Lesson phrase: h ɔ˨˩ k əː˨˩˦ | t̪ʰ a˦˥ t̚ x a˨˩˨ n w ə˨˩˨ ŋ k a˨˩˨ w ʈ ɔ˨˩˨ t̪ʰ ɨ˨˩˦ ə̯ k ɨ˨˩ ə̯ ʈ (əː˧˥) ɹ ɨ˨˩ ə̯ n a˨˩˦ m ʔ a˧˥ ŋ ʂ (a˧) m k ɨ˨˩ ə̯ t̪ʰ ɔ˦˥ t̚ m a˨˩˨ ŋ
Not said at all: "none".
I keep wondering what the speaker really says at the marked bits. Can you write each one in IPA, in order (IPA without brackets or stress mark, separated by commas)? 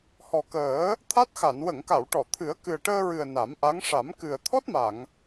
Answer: əː˧, a˨˩˦